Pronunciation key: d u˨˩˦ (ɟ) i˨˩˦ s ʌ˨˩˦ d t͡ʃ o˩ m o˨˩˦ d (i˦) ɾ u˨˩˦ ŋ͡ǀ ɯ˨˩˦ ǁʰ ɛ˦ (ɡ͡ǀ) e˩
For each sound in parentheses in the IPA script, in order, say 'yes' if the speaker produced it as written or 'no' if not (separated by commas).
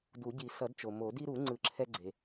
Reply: yes, yes, yes